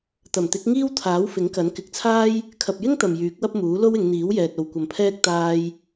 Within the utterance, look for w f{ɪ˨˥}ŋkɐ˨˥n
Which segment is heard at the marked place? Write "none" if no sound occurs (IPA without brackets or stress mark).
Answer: ɪ˨˥